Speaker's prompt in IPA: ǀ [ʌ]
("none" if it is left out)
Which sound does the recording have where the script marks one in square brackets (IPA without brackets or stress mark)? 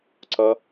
ʌ